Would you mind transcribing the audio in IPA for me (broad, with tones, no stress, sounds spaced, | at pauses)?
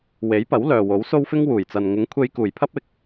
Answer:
w e˨˥ j p ɐ˨˥ w l œː˨ w o˨˥ w s o˥ w f ɪ˥ ŋ w uː˨˩ j t͡s ɐ˨ n ŋ ɪ˨˥ ŋ kʷʰ e˧ j k uː˨˩ j pʰ ɐ˥ p̚ ɪ˨ k̚